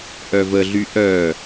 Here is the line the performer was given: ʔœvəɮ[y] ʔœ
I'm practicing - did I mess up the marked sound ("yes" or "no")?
no